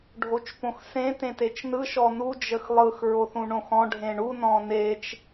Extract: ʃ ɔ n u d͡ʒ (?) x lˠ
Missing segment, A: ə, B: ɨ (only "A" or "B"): A